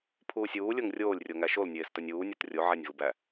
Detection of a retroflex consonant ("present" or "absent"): absent